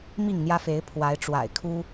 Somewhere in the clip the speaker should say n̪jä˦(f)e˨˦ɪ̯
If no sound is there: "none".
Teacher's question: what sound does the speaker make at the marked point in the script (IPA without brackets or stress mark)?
f